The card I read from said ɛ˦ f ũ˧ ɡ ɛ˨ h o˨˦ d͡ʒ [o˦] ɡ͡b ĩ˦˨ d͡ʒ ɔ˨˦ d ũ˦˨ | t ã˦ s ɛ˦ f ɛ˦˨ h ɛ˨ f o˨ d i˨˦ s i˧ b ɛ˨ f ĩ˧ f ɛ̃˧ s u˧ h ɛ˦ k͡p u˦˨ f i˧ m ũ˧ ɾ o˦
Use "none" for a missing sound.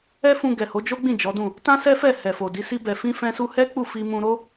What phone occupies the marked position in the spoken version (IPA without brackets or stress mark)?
o˦